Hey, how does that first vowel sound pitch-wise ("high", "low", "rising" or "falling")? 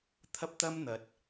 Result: high